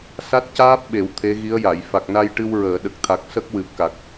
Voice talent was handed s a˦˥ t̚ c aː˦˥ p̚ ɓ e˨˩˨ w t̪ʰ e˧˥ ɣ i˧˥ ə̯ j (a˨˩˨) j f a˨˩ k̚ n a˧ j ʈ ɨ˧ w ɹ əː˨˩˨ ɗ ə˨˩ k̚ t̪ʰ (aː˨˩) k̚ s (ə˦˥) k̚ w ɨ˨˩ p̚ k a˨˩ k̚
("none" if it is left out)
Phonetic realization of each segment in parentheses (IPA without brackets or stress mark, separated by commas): a˨˩˨, a˨˩, ə˦˥